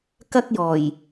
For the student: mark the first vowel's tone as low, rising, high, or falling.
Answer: high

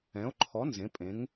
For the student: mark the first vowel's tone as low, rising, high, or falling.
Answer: rising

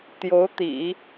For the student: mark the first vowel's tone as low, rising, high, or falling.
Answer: rising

